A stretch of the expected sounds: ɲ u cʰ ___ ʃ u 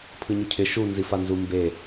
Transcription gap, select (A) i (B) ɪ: B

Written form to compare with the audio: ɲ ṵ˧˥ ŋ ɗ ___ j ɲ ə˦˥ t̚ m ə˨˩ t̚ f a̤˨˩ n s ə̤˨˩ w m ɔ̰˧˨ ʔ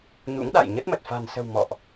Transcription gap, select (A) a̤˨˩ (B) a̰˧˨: B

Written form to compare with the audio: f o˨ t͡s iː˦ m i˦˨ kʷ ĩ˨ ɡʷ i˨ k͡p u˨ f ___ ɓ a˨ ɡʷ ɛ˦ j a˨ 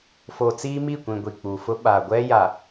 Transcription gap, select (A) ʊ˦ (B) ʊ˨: A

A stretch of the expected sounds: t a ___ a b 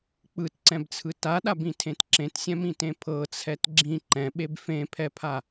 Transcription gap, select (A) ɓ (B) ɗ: B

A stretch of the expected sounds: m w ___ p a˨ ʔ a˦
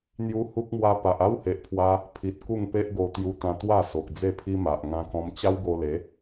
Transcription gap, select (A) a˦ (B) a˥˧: A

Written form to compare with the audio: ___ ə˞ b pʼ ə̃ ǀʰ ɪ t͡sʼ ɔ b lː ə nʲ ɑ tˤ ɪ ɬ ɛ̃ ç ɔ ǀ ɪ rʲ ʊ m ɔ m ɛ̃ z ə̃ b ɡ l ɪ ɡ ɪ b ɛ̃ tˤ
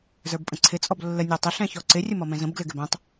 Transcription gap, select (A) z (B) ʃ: A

